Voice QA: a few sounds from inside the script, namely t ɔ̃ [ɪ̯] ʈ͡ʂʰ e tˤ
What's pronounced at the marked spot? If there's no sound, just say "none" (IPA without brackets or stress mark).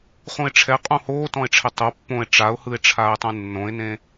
ɪ̯